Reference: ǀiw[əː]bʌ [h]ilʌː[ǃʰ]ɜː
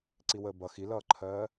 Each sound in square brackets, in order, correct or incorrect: correct, incorrect: x, correct

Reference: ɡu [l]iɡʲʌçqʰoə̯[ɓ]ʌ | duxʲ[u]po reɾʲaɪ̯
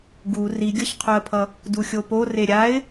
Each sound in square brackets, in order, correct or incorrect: incorrect: r, incorrect: pʰ, incorrect: o

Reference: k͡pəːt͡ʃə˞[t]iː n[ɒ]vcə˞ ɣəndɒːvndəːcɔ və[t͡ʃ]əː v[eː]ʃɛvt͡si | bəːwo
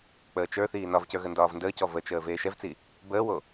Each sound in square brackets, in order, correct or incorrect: incorrect: θ, correct, correct, correct

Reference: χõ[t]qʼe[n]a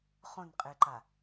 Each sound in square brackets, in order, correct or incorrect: incorrect: n, incorrect: ǃ

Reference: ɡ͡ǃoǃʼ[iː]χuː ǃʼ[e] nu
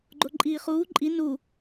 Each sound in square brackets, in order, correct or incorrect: correct, incorrect: i

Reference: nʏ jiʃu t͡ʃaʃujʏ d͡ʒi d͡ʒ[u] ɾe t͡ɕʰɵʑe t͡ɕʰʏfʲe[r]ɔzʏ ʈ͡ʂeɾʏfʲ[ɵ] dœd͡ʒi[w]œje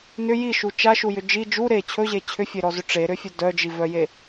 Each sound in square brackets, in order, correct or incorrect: correct, incorrect: ɾ, correct, incorrect: v

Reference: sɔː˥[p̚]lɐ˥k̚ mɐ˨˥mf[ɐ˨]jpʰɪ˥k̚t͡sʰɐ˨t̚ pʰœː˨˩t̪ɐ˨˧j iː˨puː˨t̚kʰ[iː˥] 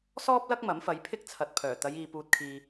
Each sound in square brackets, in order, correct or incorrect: correct, incorrect: ɐ˨˧, incorrect: iː˨

